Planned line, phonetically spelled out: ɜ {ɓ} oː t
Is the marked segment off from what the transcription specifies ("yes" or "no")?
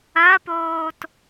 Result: yes